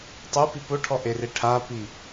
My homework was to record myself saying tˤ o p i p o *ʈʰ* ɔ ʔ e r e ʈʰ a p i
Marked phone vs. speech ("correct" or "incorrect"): correct